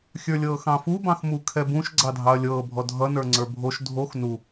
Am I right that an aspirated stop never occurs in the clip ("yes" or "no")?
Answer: no